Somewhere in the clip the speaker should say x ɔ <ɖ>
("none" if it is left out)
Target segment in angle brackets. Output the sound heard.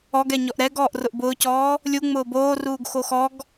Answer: ɡ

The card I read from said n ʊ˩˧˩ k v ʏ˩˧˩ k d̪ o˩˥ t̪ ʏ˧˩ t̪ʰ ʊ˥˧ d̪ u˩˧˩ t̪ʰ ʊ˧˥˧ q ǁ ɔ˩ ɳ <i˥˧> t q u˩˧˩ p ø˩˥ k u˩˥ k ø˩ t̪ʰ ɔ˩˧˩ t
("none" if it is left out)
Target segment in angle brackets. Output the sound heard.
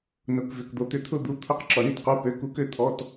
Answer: i˥˧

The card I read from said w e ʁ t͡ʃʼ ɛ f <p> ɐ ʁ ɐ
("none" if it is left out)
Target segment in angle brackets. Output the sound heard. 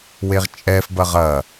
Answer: b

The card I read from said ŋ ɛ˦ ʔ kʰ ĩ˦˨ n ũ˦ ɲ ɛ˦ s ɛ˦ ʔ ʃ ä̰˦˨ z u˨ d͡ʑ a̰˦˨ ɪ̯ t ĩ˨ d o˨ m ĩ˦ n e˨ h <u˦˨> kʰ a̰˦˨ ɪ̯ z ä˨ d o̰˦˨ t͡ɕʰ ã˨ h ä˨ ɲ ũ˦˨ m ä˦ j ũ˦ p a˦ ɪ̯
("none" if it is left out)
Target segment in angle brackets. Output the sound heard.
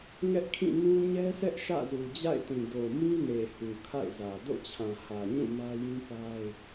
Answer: u˨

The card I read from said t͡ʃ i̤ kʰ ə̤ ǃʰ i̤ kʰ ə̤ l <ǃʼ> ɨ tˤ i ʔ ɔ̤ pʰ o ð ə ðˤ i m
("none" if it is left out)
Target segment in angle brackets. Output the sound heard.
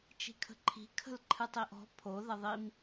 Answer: ǃʰ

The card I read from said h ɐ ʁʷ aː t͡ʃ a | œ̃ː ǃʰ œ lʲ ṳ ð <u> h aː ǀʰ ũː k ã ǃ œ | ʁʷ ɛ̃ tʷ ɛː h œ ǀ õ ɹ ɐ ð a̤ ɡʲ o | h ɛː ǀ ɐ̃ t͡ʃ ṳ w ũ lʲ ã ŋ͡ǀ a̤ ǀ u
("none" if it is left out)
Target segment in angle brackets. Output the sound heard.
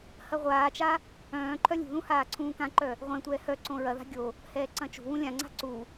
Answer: ũ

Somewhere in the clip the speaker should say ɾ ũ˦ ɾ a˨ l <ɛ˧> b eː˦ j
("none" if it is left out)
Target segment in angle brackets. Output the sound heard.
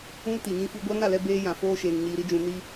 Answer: ɛ˧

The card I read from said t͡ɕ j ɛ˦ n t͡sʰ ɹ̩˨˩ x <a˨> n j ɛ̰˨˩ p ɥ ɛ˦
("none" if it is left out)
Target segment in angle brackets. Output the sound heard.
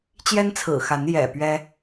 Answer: a˨˦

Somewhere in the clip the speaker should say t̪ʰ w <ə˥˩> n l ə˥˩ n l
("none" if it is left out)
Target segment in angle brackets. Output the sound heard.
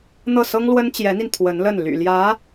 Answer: ə˧˥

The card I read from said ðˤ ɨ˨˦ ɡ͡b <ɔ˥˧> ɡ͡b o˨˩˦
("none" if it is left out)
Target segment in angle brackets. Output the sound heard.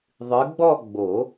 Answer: ɔ˥˧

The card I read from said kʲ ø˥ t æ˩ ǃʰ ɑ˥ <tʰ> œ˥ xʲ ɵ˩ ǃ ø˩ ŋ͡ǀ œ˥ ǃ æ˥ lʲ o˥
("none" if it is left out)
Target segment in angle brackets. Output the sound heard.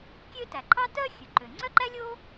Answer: t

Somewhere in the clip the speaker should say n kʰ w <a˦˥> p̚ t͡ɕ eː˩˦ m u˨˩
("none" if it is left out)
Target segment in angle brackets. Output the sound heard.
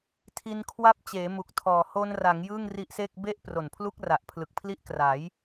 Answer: a˦˥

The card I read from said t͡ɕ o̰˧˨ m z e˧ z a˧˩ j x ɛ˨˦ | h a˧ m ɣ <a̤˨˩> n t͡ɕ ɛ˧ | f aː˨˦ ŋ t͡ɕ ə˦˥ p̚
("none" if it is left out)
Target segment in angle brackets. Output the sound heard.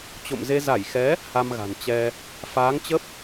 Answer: a̤˨˩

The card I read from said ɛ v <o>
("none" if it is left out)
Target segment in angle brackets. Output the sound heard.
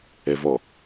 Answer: ɔ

